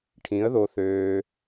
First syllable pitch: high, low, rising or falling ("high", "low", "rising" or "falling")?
rising